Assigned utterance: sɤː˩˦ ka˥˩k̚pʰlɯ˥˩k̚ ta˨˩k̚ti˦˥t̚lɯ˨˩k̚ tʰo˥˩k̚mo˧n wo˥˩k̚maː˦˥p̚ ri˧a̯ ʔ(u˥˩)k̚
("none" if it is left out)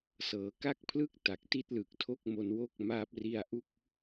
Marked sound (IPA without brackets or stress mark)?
u˥˩